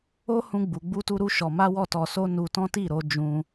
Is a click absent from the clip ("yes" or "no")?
yes